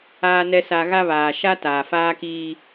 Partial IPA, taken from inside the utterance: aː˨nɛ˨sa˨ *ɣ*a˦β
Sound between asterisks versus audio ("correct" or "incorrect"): correct